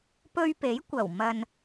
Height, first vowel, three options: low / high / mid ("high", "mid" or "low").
mid